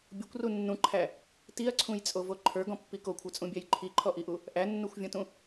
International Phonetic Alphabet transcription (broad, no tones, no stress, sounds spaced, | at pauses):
bʲ o kʷ r u nː ũ ǃʰ æ | t i ɐ̯ ǀʰ ũ j t͡sʼ o v o ǃʰ ə˞ ɡ ɔ̃ pː i k o kʷʰ ə˞ t͡sʼ ũ bʲ æ j ǃʰ i ǃʰ ɔ ʔ i ʔ u | ʔ æ nː u xʷ vʲ ɔ̃ t ũ